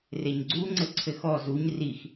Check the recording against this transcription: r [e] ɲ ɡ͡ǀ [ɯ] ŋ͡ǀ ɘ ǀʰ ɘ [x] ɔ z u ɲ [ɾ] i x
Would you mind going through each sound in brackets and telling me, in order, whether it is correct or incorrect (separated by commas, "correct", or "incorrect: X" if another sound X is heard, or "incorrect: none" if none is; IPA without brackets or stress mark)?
correct, incorrect: u, correct, incorrect: r